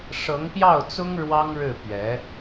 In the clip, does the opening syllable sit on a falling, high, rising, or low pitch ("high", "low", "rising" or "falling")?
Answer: rising